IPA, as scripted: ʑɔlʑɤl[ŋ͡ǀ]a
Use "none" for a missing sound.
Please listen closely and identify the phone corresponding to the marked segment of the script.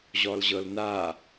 n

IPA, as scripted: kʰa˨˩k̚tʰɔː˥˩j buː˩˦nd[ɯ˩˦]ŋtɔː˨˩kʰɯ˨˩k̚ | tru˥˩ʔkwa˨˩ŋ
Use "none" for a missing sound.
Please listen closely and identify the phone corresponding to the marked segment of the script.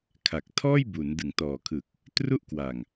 ɯ˩˦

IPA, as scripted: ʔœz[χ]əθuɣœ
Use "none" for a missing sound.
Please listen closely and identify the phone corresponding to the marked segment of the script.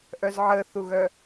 ʕ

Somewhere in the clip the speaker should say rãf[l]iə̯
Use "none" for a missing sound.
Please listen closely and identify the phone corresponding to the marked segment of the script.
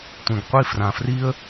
r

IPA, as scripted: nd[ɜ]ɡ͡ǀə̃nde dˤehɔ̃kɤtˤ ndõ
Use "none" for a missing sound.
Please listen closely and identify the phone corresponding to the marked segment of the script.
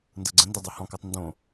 ɜ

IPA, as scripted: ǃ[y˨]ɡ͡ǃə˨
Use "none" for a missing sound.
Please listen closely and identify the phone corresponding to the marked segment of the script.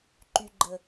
y˨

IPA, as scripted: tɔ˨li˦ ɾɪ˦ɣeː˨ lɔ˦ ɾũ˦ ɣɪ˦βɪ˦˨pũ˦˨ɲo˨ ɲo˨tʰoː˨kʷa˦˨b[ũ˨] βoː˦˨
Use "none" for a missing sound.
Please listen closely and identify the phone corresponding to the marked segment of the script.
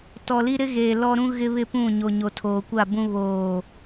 ũ˦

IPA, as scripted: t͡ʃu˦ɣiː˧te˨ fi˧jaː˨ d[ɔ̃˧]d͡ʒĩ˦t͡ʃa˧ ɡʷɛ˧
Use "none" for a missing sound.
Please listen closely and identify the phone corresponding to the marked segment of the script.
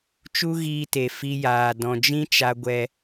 ɔ̃˨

